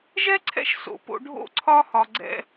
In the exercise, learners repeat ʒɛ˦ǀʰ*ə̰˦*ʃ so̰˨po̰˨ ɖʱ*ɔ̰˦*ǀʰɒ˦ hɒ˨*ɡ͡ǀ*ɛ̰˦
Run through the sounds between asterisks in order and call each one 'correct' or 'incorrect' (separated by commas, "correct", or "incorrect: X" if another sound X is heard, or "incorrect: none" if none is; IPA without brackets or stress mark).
incorrect: ɛ̰˦, incorrect: o̰˦, correct